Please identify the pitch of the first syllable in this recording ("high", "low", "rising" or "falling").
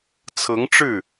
rising